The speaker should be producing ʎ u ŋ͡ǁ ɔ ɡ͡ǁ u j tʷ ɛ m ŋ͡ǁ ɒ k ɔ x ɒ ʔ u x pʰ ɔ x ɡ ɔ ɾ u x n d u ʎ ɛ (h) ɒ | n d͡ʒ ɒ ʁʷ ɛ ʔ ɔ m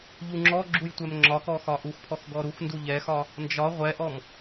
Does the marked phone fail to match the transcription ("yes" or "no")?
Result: yes